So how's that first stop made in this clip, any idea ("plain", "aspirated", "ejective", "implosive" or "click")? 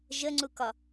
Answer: click